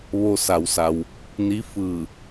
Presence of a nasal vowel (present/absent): absent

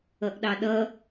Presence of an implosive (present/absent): present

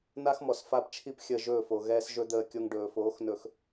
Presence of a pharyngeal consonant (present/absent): absent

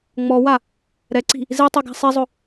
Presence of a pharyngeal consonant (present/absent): absent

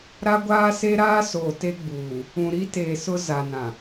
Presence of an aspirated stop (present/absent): absent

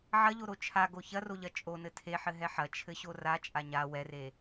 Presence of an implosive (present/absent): absent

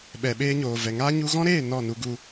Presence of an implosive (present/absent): present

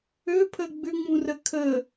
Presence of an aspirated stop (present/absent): present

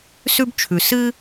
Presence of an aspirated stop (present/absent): present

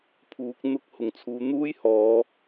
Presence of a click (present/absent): absent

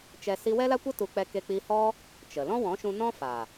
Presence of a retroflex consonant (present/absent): absent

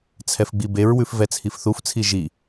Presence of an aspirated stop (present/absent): present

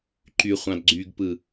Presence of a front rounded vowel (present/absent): present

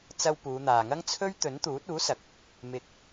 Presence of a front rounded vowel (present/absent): absent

